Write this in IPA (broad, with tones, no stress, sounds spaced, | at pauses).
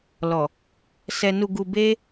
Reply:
l ɔ˨ | s ɛ˧ n u˧ ɡ u˧ b e˦